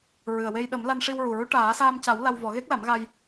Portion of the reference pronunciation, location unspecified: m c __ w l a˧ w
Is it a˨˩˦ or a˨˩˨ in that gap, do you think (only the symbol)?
a˨˩˦